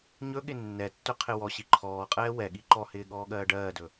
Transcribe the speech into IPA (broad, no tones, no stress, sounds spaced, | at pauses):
ɲ ɵ ɠ ɪ nː ɛ tː ɵ qʰ ɪ w ɔ ɕ i ǃʰ ɔː qʼ ɛː w ɛ ɠ i ǃ ɔ h ɪː ɠ ɔː ɠ ɜː ɖ ɜː d ɵ